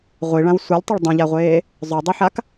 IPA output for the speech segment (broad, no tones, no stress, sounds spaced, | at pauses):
ʁʷ i ɭ ã w sʷ œ lʲ tˤ œ ɭ dˤ ũ ʎ a ʁʷ eː | zˤ œ dˤ i ħ a k